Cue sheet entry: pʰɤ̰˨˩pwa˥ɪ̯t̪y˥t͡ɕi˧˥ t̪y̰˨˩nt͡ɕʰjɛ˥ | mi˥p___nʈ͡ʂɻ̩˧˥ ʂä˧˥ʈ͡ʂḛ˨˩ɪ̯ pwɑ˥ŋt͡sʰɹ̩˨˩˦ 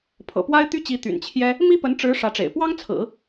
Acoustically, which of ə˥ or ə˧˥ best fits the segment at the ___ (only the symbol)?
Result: ə˧˥